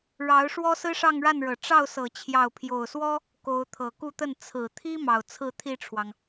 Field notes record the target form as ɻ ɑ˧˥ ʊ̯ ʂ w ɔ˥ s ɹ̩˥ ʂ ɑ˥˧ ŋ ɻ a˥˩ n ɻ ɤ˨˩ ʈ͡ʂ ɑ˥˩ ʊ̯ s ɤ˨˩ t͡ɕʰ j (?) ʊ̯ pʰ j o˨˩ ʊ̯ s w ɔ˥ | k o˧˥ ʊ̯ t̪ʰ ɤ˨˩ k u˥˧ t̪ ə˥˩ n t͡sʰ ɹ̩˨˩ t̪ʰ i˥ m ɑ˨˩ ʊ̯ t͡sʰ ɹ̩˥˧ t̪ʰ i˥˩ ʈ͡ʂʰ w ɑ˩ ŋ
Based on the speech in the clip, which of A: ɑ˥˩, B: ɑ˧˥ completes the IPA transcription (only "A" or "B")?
A